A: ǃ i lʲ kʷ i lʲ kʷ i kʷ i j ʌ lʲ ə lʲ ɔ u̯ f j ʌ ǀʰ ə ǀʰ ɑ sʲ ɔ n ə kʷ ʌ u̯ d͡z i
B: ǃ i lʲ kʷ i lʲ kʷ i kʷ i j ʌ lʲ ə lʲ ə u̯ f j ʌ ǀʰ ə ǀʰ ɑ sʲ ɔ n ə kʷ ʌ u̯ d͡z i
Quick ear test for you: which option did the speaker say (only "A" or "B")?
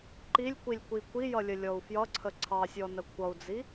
A